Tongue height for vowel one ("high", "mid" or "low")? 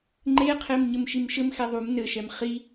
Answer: mid